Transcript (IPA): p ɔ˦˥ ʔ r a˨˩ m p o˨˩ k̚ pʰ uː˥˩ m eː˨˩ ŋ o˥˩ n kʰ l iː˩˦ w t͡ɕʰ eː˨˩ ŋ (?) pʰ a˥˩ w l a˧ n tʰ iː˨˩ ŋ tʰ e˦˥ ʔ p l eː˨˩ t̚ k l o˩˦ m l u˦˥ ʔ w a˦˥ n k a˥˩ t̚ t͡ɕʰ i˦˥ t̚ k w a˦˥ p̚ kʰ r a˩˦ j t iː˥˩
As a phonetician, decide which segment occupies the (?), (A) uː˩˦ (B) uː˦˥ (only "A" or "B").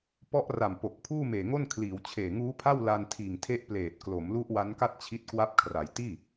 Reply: B